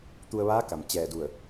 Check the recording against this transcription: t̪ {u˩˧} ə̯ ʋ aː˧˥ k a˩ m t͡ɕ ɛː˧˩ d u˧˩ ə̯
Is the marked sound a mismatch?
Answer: yes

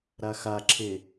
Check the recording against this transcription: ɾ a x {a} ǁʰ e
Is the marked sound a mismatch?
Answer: no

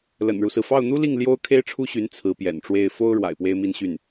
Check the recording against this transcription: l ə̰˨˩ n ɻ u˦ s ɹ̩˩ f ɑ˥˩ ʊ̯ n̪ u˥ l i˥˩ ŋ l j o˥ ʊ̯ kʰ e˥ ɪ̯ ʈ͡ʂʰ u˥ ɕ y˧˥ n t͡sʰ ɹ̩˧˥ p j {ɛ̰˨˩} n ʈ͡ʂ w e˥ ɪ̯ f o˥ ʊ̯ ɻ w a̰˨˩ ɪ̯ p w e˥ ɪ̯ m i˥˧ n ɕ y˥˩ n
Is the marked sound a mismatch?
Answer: no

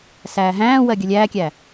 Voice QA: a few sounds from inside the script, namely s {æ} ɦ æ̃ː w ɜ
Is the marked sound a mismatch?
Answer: yes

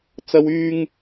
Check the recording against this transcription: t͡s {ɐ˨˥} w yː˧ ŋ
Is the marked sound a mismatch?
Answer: yes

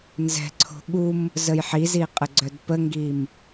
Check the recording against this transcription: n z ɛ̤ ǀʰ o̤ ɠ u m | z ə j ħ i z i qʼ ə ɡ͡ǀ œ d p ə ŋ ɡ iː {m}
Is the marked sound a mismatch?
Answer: no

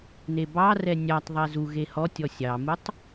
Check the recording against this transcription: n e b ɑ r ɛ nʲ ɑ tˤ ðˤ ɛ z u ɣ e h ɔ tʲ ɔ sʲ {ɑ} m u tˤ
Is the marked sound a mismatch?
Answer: no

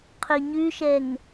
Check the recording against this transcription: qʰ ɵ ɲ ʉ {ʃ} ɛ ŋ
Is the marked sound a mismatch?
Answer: no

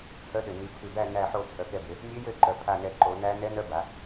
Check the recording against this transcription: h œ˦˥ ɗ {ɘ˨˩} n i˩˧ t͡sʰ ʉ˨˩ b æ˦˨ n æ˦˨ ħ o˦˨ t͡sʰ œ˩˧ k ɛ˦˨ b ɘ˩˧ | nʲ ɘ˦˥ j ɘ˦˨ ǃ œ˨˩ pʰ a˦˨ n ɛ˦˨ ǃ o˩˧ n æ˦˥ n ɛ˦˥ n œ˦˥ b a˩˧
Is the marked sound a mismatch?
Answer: no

